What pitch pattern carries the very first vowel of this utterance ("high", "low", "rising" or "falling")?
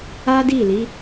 high